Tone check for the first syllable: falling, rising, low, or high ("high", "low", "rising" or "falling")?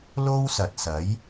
high